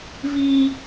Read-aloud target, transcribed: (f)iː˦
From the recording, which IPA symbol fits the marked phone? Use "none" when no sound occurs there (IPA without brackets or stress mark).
v